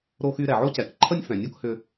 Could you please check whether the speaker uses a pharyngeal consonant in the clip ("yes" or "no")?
yes